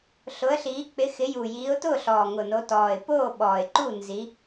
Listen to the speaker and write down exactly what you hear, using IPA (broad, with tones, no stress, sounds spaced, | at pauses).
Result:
ɬ ʊ˨˦ ə̯ ɬ iː˨˦ k͡p ɪ˨˦ x ɪ˨˦ j u˨˩ j iː˨˦ ʊ̯ t ʊː˥˨ ɬ ɔː˨˩ ŋ ʊ˨˩ n o˨˦ t ɔː˨˩ ɪ̯ p oː˥˨ ɓ ɔː˨˩ ɪ̯ ǃ u˥˨ n z i˨˦